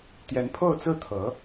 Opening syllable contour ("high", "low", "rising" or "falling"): rising